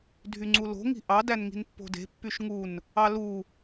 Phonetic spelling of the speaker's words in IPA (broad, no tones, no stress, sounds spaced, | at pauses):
dʱ y ŋ͡ǀ u l o̤ ŋ i̤ ʔ ɑ d æ n ŋ i̤ n pː o̤ d e̤ pː y ʃ ŋ u n | ɑ l u